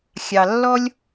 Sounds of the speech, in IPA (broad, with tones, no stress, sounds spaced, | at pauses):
xʲ ɑ˩ lː ɔ˥ lʲ